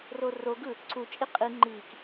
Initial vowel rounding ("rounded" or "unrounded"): rounded